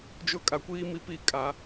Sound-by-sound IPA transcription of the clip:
d͡ʒ ʊ˦ kʼ a˨ kʷ iː˦ m i˨ p i˦˨ kʼ a˨˦

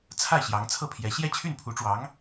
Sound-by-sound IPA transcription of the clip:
t͡sʰ a˥˩ ɪ̯ ɕ j ɑ˧˥ ŋ t͡sʰ ɤ˥˩ pʰ j ɛ˧˥ ɕ j ɛ˥˧ t͡ɕʰ y˥˩ n pʰ u˧˥ ʈ͡ʂ w ɑ˧˥ ŋ

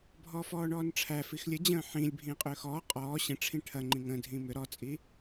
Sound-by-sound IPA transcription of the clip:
bʱ ɔː f ɔː ɳ ɔː n ʈ͡ʂʰ æ f i x lʲ ə d͡ʑ ə̃ː ħ ĩ lʲ bʱ ĩː qʼ ʏː x ɔː qʼ ɔː ɕ ə̃ ʈ͡ʂʰ ĩ ʈʰ ɐ ŋ͡ǃ ĩ ŋ ə̃ː dʱ ĩː m ʏ ɾ ɔ t͡sʼ i

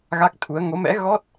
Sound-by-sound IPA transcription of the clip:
ɣ a˦˥ k̚ t̪ʰ u˨˦ ə̯ ŋ o˨˦ m ɛ̰˧˥ ɣ ɔ˦˥ t̚

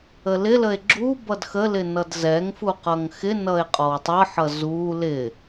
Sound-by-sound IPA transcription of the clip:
ə l ɪ l ə e̯ ɡ͡ǁ u b ʌ d x ə l ɪ n ʌ d z ɛ ŋ f u q ʌ ŋ x ɪ n ʌ e̯ qʼ ɔ w tˤ ʌ ħ ʌ z u l ɪ

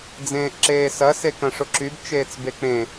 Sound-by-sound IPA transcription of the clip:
d͡z ẽː ʔ ǁ eː s ɐ s e k ɐ̃ ʂ ʊ ǁ y b t͡ʃ eː t͡s b e k͡p ẽ

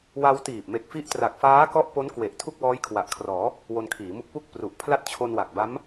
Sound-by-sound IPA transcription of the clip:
w a˧ w t iː˨˩ p̚ m e˨˩ k̚ f i˦˥ ʔ t r a˨˩ k̚ f aː˦˥ k ɔ˦˥ ʔ p o˦˥ n k w e˨˩ ʔ tʰ u˥˩ k̚ w ɔː˦˥ j kʰ w a˨˩ ʔ kʰ r ɔː˩˦ | w o˧ n kʰ iː˩˦ m u˦˥ k̚ p u˥˩ k̚ p r u˨˩ ʔ pʰ l a˥˩ t̚ t͡ɕʰ o˧ n w a˨˩ k̚ b a˦˥ m

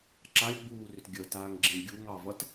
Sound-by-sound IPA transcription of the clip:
ǁ a lʲ ɡ͡b uː r ʏ t ɡʲ ə t aː ŋ ɡ͡ǁ ẽ ɡʲ u ŋ ɑ v ʌ t

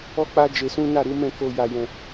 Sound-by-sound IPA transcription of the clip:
ɔ˦ k͡p a˦ d͡ʒ e˧ s ũ˦ n a˦˨ ɾ u˨˦ m ɛ̃˦˨ k o˧ j a˧ j ɛ̃˧

